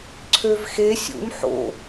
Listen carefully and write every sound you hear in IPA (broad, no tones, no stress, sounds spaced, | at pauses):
ǀʰ ø v x e sʲ ṵ m ħ o̰